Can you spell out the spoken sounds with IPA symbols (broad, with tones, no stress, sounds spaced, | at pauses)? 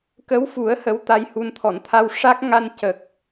k ə˧˥ w f u˨˩˦ ə̯ h ə˧˥ w t̪ a˧ j h u˧ n t̪ʰ ɔ˨˩˨ n t̪ʰ a˧ w ʂ a˦˥ k̚ ŋ a˧ n c ə˨˩ k̚